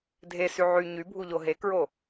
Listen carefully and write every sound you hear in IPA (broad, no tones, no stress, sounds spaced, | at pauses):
dʱ e s y ʕ y ɲ y bʱ u ʎ o ɦ e k ɹ o